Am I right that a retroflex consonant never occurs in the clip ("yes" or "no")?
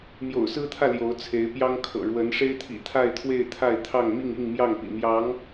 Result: no